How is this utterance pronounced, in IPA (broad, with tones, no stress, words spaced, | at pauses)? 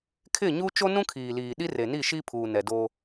kʰɪ˦˨ɲu˦ t͡ʃo˦nũ˦kʰiː˨liː˨ ɗi˦re˨ni˦˨ ʃi˦pʰuː˨ nɛ˨do˦